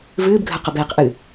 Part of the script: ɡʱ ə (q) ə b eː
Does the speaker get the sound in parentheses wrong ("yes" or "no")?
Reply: no